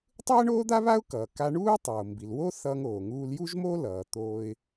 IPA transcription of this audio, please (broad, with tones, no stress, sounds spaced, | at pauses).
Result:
tˤ ɯ˥ ə̯ ɳ oː˥ d̪ a˥ β a˥ ʊ̯ k ʌː˩ k a˧ ɳ uː˥ tˤ oː˩ m b i˩ l w o˥ θ ʌː˧ ŋ oː˩ ŋ uː˧ l j u˥ ʒ m o˥ l ʌː˩ t̪ oː˧ ɪ̯